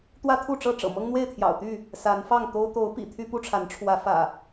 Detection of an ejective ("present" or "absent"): absent